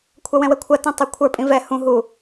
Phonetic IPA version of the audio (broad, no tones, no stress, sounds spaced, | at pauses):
kʷʰ ɐ w ɛ̃ w ɛ kʷʰ ɐ t ĩ tˤ ɛ kʷʰ ə˞ pʼ ĩ v ɛ h ũ ɦ u